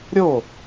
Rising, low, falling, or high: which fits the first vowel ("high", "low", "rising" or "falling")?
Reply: falling